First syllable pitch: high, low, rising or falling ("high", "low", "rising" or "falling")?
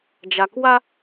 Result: low